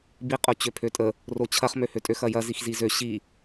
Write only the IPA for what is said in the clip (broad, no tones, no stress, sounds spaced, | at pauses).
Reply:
b i qʼ o t͡ɕ ø pʰ ø tʼ ə | r o t͡ɕʰ ɐ χ m ø h ø tʼ ø x ɐ j ɐ z i x z i z ø ɕ i